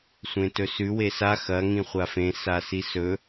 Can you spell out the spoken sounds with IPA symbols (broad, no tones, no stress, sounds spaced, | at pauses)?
sʷ ẽ t ɵ s ʉ w e s a x ɐ ŋ ĩ χʷ a f ẽ s a s i s ɵ